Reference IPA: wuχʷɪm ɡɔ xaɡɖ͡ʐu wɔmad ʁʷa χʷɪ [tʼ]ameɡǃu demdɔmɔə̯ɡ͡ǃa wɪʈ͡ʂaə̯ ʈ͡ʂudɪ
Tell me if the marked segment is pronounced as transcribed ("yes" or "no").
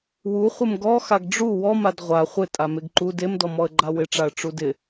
yes